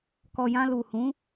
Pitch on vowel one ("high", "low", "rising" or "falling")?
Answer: low